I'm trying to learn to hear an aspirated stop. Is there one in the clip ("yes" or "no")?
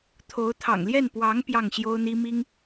yes